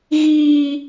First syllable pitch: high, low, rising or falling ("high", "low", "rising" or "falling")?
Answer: high